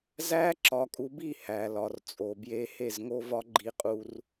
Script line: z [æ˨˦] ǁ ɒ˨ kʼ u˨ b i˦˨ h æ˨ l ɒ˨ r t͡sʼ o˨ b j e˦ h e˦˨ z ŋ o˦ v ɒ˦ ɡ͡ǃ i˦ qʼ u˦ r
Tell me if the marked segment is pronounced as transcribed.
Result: no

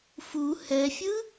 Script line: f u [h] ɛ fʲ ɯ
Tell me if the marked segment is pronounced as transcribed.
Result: yes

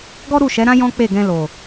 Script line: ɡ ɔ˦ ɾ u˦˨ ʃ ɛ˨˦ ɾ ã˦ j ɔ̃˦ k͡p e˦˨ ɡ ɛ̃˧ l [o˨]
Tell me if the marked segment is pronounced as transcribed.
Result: yes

